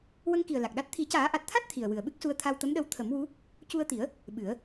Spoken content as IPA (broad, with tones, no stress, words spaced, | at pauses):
wə˧ŋki˨˩ə̯ la˨˩k̚ɗa˦˥t̚ t̪ʰi˨˩˦caː˨˩˦ʔa˨˩t̚t̪ʰa˦˥t̚ t̪ʰi˨˩ə̯wɨ˨˩ə̯ɓɨ˦˥k̚su˧ə̯ t̪ʰa˧wt̪ə˧˥mɗə˧w t̪ʰə˨˩˦mwu˧˥ | cu˧ə̯t̪i˨˩˦ə̯ | ɓɨ˨˩˦ə̯